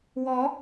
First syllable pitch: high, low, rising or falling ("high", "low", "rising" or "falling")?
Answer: rising